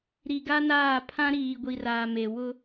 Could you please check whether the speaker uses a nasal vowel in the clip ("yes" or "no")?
yes